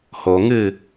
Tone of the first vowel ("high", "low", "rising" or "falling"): low